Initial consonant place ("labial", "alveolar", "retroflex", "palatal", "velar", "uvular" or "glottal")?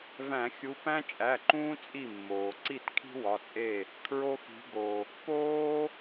labial